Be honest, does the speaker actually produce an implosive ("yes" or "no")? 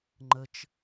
no